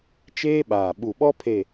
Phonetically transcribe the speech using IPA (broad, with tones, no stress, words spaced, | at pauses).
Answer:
t͡ʃeː˦ɓaː˨ ɓu˨ɓɔ˦ pʰe˨